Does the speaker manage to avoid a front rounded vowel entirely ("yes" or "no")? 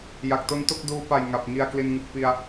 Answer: yes